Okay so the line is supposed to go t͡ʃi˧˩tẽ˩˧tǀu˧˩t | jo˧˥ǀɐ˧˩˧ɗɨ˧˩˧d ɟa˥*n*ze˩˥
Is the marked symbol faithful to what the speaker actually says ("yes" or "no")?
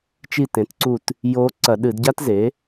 no